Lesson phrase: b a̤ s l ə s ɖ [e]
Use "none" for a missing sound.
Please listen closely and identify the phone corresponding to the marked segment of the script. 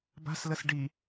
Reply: i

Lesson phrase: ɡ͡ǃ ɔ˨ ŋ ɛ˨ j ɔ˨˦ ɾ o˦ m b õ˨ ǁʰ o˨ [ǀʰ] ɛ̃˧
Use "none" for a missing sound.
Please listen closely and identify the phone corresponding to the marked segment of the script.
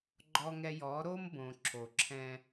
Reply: ǁʰ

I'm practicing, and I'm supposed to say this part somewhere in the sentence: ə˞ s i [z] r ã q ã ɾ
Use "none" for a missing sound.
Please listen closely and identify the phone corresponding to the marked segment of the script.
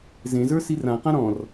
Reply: none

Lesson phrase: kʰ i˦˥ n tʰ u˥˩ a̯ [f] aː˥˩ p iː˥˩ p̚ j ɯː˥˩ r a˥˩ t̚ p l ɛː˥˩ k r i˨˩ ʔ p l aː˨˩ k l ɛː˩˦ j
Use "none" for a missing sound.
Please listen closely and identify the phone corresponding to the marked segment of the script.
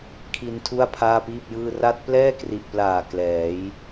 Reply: pʰ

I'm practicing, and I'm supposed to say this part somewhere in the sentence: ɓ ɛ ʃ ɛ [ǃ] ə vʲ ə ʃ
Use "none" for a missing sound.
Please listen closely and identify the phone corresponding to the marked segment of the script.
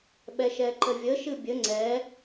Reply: ǃ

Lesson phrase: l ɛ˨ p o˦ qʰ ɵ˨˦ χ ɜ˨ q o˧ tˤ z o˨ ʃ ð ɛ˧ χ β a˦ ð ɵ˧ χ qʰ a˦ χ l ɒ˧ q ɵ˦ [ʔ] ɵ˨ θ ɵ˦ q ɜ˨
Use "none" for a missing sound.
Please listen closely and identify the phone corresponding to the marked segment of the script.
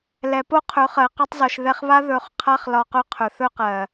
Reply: qʰ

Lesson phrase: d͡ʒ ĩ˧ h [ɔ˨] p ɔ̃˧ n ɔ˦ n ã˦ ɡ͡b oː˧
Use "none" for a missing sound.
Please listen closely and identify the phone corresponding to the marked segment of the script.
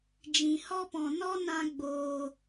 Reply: ɔ˦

